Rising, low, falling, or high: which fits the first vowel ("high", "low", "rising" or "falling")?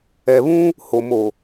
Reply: low